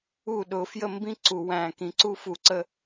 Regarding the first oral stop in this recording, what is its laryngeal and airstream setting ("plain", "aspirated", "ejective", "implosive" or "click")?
implosive